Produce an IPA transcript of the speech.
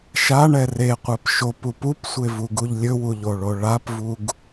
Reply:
ʃ a ɳ ɛ r e qʷ ɛ p ʃ o p u p u p sʷ e v u ɡ u ʎ lʲ ɵ w u ʎ o ɭ o ɭ a p v u ɡ

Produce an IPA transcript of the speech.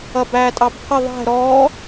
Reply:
ʌ b æː tʼ ɑ b pʰ ə ðˤ ɛ̤ ɾ ɔ

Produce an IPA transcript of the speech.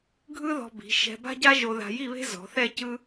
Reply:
ɡʱ ɯ˥ ð ɔ̤˧ b i̤˩˧ ʃ ɛ̤˧ b a̤˥ ɟ a˥ ʒ o˧ ð a̤˧ j i˥˧ β e̤˥ z ɔ̤˩˧ θ ɛ˥˧ c ɯ˥

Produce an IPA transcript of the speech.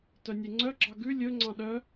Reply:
t œ nʲ e ŋ͡ǀ œ ɡ͡ǁ ɑ ɡ ʉ lʲ ɵ ŋ͡ǀ ɑ̃ ɗ œ

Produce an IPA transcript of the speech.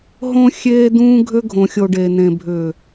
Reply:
ɦ õ˦ xʲ eː˦ d̪ ũː˦ ɡʱ ʏ˦ ɡʱ õ˨ xʲ o˨ ɖ e˨ n̪ ẽ˨ bʱ ʏ˨

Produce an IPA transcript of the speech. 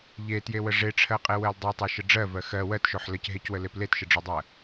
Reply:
ʎ e t j e w ə ʐ e ʈ͡ʂʰ ɜ qʼ e w ɜ l dˤ e tˤ ɜ ʃ ə ɖ͡ʐ ɜ v ɜ x ɜ w ɜ t ʃ o ħ l ə c ɦ e c w ə l e p l e t ʃ ə ɖ͡ʐ o dˤ ɜ

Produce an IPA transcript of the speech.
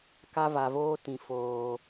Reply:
k a˦ v a˨ v oː˦ t ĩ˨ f oː˨

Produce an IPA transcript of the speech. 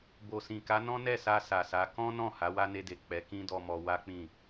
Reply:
b o˨ s ĩ˨ k a˨˦ n ɔ̃˦ n ɛ˦˨ s a˧ s a˨ s a˨˦ k ɔ̃˦ n ɔ̃˦˨ h a˨˦ w a˦ n e˧ d e˨ k͡p ɛ˨˦ k ĩ˦ d ɔ˧ m ɔ˧ w a˦ k͡p ĩ˦˨

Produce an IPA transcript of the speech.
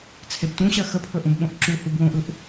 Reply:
t͡sʰ e b t ũ ɕ ɜ x ə pʰ ɵ ʔ ũ b ɓ õ ʔ ǁ u h u b w õ ʔ ɯ ʔ

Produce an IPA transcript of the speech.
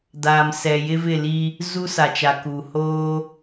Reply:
d aː˨ m s ɛ˨ j ɪ˦ v ɪ˦˨ l i˦ | z u˦ s a˨ t͡ʃ a˨ k uː˨ h oː˦

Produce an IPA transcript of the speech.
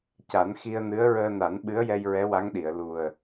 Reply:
c a˨˩˦ n x i˧ ə̯ n ɨ˧˥ ə̯ ɹ əː˧ n a˨˩˦ n ɓ ɨ˧˥ ə̯ j ɛ˧ j ɹ ɛ˧˥ w a˧˥ ŋ ɗ i˨˩˨ ə̯ l u˨˩ ə̯

